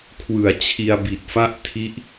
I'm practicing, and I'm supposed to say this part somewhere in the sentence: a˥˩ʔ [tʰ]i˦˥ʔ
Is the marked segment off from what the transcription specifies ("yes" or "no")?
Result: no